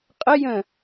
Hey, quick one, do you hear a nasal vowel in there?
yes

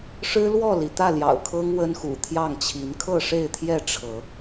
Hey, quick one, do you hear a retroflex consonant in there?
yes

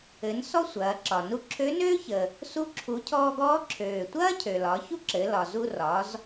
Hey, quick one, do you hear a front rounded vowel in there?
yes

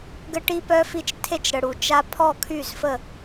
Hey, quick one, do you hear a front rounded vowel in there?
yes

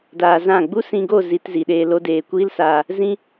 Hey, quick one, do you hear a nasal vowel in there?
yes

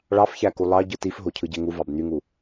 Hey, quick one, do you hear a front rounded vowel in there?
yes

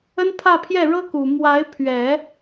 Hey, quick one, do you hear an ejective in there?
no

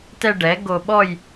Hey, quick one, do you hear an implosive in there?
yes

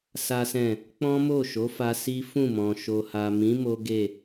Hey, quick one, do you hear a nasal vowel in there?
yes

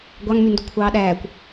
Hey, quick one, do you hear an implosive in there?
yes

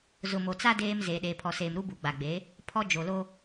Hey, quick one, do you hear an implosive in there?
yes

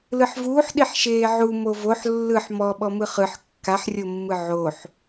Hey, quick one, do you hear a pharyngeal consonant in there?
yes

